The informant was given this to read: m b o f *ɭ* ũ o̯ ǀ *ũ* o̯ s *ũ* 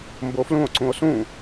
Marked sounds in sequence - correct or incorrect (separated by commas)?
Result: incorrect, correct, correct